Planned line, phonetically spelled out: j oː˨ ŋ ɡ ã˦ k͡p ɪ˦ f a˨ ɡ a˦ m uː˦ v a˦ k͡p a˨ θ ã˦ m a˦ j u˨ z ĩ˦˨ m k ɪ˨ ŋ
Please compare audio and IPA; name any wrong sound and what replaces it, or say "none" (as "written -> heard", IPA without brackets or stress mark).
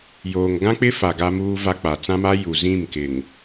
θ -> t͡s